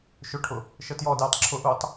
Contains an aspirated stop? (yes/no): yes